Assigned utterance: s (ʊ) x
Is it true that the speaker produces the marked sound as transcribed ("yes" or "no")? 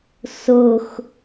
yes